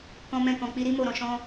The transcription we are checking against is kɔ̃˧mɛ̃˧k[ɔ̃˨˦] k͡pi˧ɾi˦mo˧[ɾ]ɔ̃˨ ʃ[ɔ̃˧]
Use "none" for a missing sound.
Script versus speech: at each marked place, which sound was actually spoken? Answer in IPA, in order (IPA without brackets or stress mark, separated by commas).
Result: ɔ̃˨, ɾ, ɔ̃˧